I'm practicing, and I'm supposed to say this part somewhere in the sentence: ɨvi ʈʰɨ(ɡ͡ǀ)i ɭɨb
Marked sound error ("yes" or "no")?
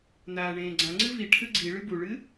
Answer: no